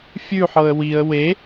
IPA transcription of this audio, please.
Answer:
fʲ ʉ ħ ɤ ə̯ w i ə̯ w e

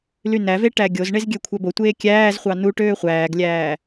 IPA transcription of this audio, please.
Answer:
l y n æ v e ʈ æ ɡʲ o z ɳ e z ɡʲ ø kʷʰ æ b o tʷ eː kʲ æː z χʷ ɑ n u ʈ øː χʷ æː ɡ lʲ æː

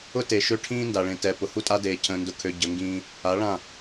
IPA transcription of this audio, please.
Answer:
ʊ˦ t e˨ ʃ ø˦ ʈʰ ĩː˦ n d a˨ ɭ ẽ˨ t ɛ˨ p ʊ˨ h u˦ tʼ a˦ d eː˨ cʰ ə̃ː˨ n d ʊ˨ kʰ ø˨ ɟ ə˨˦ ŋ ɡ ĩː˦ | a˨˦ ɭ ã˦˨

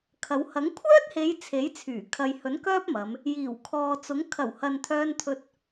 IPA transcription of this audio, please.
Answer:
kʰ ɐ˨˧ w h ɐ˨˥ ŋ kʷʰ œː˥ t̚ h e˨˧ j t͡sʰ e˨˥ j t͡sʰ yː˨˩ kʰ ɐ˨ j h ɵ˨˥ n k œː˥ p̚ m ɐ˨˧ m | j iː˨˩ w kʰ ɔː˨ t͡s ʊ˨˥ ŋ kʰ ɐ˨˩ w h ɐ˨ n t̪ʰ œː˧ n t̪ʰ ɵ˧ t̚

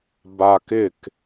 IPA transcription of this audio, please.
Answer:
b a k ɪ k

